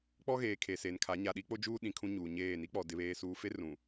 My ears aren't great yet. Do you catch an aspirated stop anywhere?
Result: yes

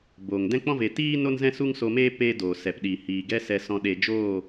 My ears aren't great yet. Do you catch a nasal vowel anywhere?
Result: yes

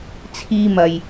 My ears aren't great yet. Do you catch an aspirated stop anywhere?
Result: yes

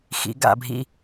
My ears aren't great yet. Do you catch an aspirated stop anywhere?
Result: no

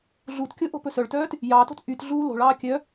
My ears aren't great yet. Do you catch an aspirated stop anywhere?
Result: no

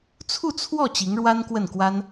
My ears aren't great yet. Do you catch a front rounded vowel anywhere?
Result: no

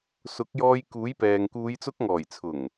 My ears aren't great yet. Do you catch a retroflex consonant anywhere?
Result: no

